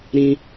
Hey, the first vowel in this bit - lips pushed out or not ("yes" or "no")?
no